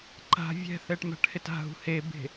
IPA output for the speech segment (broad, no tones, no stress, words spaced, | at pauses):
ǃa̤ vʲɛ̤θɛʈ ma̤ʈhɪta̤ɦṳ hebe̤